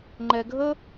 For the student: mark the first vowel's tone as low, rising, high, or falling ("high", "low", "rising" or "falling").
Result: low